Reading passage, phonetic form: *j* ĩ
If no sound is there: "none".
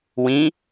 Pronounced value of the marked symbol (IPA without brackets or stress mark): w